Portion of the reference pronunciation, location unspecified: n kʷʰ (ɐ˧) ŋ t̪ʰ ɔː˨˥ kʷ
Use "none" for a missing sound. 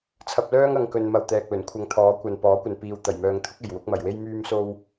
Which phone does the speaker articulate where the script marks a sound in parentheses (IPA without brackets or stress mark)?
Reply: ɐ˧